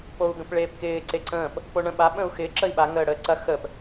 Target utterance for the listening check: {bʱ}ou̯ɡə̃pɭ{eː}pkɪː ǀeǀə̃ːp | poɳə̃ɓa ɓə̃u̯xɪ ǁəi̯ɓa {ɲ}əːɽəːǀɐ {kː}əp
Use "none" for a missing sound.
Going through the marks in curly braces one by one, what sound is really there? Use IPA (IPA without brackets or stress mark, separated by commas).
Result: p, eː, ŋ, x